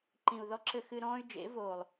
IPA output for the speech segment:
ǃĩ˨u̯ðɔ˧ǁɘ˧ xɨ˧ɾɔ̃ː˦y̯d͡ʒḛ˨˦ voː˨lˠ

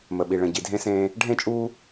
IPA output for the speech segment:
mə˨ɓi˨ɭə̃˨ ɟi˨dʱẽ˦sẽː˦ | ɖʱẽ˦˨t͡ʃʼuː˦

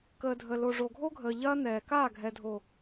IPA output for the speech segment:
kəː˨dʱə˨ lo˨ʐo˨ɡʱo˦ɡʱəː˨ ʎɐː˦n̪ɛː˨ kaː˦˨ɡʱɛ˨dʱo˨

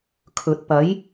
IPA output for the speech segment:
kʰɵ˨t̚ pɐ˨˥j

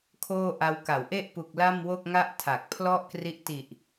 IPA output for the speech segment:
kʰoː˥˩ ʔa˧wka˩˦wʔe˥˩ʔ pu˨˩k̚ la˥˩mwo˥˩k̚ŋa˥˩ʔ tʰa˨˩k̚pʰlɔ˥˩ʔkri˦˥ʔ ti˨˩ʔ

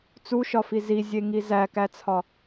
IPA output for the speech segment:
t͡suʃɒfi zizʲeŋi zækæt͡sʰɒ

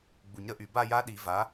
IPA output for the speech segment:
ɡ͡bu˨˩˦ɲɾə˨˥ʔy˨ ba˥˧ja˦˥ɗi˨˩˦ va˨˥

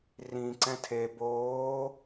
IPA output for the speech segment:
rĩ ǀɛ̃tʰe boː

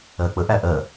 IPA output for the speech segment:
ɜk͡pəʔæ ʔɜ

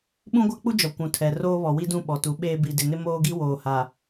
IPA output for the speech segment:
ɓũ˦ɡʷa˦k͡pu˦d͡ʒɔ˨ kʷũ˨tʰɛ˨ roː˦βɔ˨wi˦dũ˦˨ ɓɔ˨tu˨˦ɓeː˦ bi˨dɪ˨nɪ˦ moː˦ɡi˦ woː˨ha˨

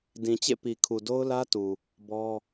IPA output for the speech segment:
dĩ˨t͡ɕḛ˦˨pi˨kʰu˨ do˦ʊ̯lä˦tu˨ | bɔ˦

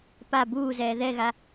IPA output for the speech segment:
pa buːzɛː ðɛɣa

